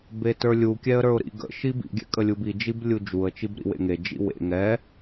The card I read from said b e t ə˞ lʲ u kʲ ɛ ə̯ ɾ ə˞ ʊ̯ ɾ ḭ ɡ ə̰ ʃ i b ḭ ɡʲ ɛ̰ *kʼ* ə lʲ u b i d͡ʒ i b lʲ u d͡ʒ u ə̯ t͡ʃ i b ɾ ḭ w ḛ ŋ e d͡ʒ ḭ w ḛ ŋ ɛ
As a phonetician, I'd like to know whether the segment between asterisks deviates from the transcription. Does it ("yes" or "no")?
no